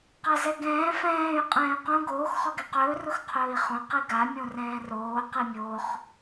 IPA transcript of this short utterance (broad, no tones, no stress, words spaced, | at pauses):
qazɛɡɛ̃ː fɛ̃ːy̯ qʼɛ̃ːy̯qõ ɡoːx χɔɡɛqɵː rʊxqʰɵːi̯χõ qiɡa mʲõrɛ̃ːroː qimʲoχ